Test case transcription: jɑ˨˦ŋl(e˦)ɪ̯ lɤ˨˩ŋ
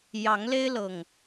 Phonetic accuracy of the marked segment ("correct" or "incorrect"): correct